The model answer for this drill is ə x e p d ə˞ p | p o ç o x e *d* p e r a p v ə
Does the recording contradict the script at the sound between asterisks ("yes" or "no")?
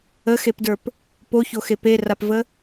yes